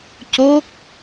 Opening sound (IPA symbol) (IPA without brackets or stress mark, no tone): c